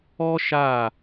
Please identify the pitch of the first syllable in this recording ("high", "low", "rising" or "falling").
high